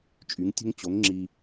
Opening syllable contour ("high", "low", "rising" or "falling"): rising